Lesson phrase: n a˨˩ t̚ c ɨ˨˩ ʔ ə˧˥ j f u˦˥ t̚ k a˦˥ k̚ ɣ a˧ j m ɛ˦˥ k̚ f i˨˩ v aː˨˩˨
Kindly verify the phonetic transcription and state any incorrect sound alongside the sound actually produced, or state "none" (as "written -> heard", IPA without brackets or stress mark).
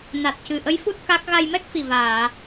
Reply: none